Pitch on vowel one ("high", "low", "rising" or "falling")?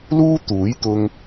high